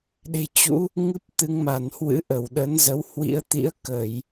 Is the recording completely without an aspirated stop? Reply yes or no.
yes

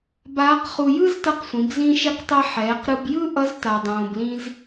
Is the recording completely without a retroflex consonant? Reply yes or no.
yes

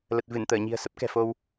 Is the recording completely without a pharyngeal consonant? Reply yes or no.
yes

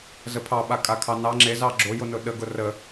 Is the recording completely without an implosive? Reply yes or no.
no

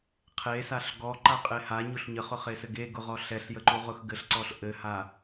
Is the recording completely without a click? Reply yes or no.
no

